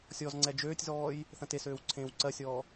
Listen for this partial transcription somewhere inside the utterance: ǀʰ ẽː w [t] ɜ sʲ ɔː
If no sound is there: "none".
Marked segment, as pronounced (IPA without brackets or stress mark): ǀ